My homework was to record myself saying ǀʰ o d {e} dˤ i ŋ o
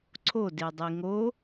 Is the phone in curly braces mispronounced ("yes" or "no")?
no